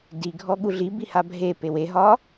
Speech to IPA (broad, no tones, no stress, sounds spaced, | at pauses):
d i ɡʱ ɔ ɠ u ɮ i b i h a bʱ e p e w e ɦ ɒ